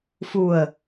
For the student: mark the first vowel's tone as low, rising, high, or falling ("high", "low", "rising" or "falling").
low